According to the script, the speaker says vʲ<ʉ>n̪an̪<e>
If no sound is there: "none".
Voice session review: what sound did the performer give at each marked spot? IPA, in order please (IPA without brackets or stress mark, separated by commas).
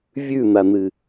ʉ, ɨ